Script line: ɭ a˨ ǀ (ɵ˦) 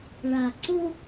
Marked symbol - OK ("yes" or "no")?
no